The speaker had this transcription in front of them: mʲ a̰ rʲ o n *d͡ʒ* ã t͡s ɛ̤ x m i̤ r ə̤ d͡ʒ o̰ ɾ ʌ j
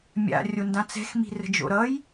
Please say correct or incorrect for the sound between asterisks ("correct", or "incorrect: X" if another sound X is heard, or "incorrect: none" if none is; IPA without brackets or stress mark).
incorrect: d